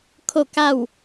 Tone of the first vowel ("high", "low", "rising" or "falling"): falling